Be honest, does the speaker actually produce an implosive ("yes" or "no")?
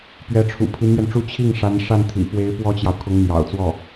no